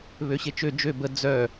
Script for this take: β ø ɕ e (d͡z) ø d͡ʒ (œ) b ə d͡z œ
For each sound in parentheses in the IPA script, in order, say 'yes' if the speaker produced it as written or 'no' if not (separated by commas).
no, no